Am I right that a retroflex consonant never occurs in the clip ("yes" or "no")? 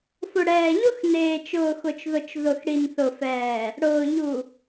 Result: no